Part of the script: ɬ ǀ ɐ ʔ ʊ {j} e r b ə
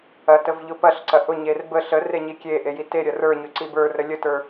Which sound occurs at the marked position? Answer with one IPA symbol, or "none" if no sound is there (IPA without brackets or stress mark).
ɲ